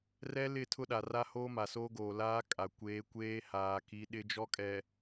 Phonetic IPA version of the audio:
r ɛ˦ l ɪ˦˨ tʰ ʊ˦ ɗ a˨ r a˦ h oː˦ m a˨ s oː˦ ɡ oː˨ l aː˦ kʼ a˨ kʷ eː˨˦ kʷ eː˦ h aː˨ k i˨˦ ɗ ɪ˦ d͡ʒ ɔ˦ kʼ ɛ˨

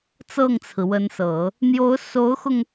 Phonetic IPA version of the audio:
t͡s ɤ˥˩ ŋ t͡sʰ ɹ̩˩ w ə˧˥ n s ɤ˨˩˦ | n̪ j o˧˥ ʊ̯ s o˧˥ ʊ̯ x ʊ˧ ŋ

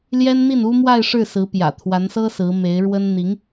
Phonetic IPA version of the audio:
l j ɛ˥ n n̪ i˥˩ n u˥ m w a˥˧ ɪ̯ ʂ ɻ̩˥˩ s ɹ̩˧˥ p j ä̰˨˩ t̪ʰ w a˧˥ n s ɤ˥ s ɹ̩˧˥ m e˧˥ ɪ̯ ɻ w ə˥ n n̪ i˧˥ ŋ

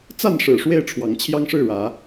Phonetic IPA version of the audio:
t͡s a˥˨ n ʂ ɻ̩˨˩ ʂ w e˥˨ ɪ̯ ʈ͡ʂʰ w ɑ˨˦ ŋ t͡ɕʰ j ɑ˦ ŋ ʂ ɻ̩˥˨ ɻ ä˨˦

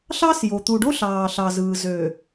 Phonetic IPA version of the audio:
ɬ ɑ˦ s j o˨ t̪ u˨ ɖ o˦ ɬ ɑː˨ ɬ ɑ˨ z ɯː˨ z ø˨

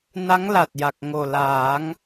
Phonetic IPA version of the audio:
n a˧˥ ŋ l a˨˩ t̚ j a˨˩ k̚ ŋ o˨˩ l aː˨˩˦ ŋ

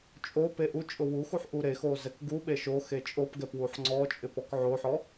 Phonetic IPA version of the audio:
t͡ʃʼ o p e ʔ u t͡ʃʼ ʊ w u x u ħ ʔ u ɾ e x o z ɛ k ɡ u ɓ e ʃ o x e t͡ʃʼ o p ɡ ɛ p w u ħ ŋ͡ǀ ɔ t͡ʃʼ ɪ p ɔ k ʕ o ħ ɔ

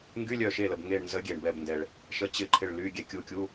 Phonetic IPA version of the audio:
ŋ ɡ y˧˥˧ lʲ œ˧˩ ʃ e˧˩ l ə˩ b ŋ e˧˩ ɳ n z ə˨˥ ɡʲ e˩ ɳ b ɛ˧˩ b n d ɛ˩ ɭ | ʃ ə˨˥ t͡ɕ ɪ˧˩ ǃʰ ɪ˧˩ ɭ l y˧˥˧ ɡʲ ɛ˧˩ kʲ u˧˩ kʲ u˧˥˧

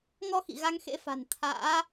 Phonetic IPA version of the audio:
ŋ ɔ˧ x ḭ˧˨ ɣ a˧ ŋ x ḛ˧˥ f a̤˨˩ n t̪ʰ a̰ː˧˥

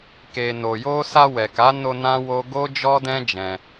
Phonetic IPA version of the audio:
k e˨ n o˨ j o˧ s a˧ w ɛ˨ k a˨˦ n o˧ n ã˦ w o˦ ɡ o˦ d͡ʒ ɔ˦ d ɛ̃˦ d͡ʒ ɛ̃˧

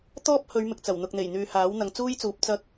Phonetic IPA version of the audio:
t̪ ɔː˥ p̚ h ɵ˨˧ ɥ m ɪ˨ k̚ t͡s ɐ˨˩ w n̪ ʊ˨ k̚ n̪ e˨˩ j n̪ yː˨ h aː˨˥ w n̪ ɐ˨ ŋ t͡s uː˥ j t͡s uː˨˥ p̚ t͡s ɐ˧ k̚

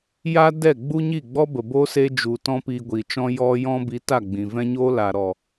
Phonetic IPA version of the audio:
j a˦ d ɛ˦˨ ɡ͡b u˦ ɲ i˦˨ ɡ͡b ɔ˦ b ə˨ b oː˦ s e˦ d͡ʒ u˨ t ɔ̃˦ p iː˧ ɡʷ i˨ t͡ʃ ɔ̃˦ j ɔ˧ j ɔ̃˧ b i˨˦ t a˦˨ ɡ͡b ĩ˨ v ɛ̃˦ ɲ oː˦ l a˨ ɾ ɔ˨

